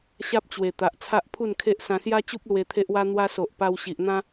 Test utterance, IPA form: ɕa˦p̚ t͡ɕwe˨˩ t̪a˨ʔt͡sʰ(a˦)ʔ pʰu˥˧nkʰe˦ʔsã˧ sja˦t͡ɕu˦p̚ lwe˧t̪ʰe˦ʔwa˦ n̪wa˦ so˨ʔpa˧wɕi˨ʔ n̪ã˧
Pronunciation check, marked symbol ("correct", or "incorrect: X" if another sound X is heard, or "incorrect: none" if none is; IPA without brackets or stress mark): correct